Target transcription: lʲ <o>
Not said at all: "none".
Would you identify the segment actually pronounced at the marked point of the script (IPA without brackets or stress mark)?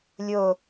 o